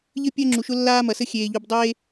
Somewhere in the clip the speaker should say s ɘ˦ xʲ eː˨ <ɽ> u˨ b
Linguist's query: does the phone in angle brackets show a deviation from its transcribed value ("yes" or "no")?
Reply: yes